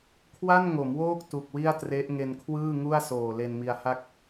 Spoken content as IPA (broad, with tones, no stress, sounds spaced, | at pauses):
kʰ w a˥˩ n ŋ o˩˦ m w oː˥˩ k̚ t u˨˩ k̚ w i˥˩ a̯ t r e˦˥ ʔ ŋ e˧ n kʰ w ɯː˥˩ ŋ u˥˩ a̯ s oː˨˩ l e˧ n m i˧ a̯ h a˥˩ k̚